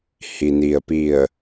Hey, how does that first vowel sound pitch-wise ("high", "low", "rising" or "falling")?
low